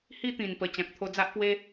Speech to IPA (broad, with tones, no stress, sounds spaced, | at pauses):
h i˦ t̪ ĩ˨˩ n p ə˨˩ t͡ɕ ã˨ k̚ t̪ʰ o˧ d͡z a˦ ʔ p w e˦